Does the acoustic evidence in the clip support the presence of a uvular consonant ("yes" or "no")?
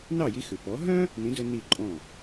no